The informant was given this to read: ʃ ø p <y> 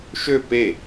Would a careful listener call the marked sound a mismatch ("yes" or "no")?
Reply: yes